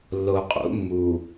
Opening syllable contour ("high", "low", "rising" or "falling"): low